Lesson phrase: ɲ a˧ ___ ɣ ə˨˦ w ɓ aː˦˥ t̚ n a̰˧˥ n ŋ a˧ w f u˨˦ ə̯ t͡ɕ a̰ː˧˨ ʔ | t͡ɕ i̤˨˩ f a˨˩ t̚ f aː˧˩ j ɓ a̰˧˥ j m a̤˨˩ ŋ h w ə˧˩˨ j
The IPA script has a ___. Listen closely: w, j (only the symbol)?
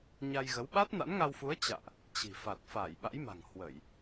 j